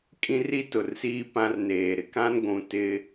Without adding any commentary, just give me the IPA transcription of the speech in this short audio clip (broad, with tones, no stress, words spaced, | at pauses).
kʼĩ˦ri˦tʊ˨rsiː˦ pã˦rneː˨ ɾɪ˨kã˦n ɡʷũ˨ tɪ˦